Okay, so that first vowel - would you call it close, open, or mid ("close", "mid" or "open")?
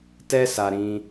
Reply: mid